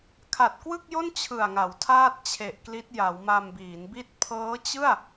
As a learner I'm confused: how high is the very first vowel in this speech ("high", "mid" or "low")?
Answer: low